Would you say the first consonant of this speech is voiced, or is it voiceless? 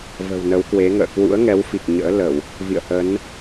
voiced